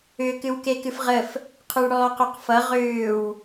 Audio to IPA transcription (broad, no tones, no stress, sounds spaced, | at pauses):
ʏ k ɨ w k e k ɨ f ʁ ə f | qʰ ø ɭ ɽ ɔː q ø q f ʌ ʁ ʏː w